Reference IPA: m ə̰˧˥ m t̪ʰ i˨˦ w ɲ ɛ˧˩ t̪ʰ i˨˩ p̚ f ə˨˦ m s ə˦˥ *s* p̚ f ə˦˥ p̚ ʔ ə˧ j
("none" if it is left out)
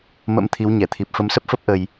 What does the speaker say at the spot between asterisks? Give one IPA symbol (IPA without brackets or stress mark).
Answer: none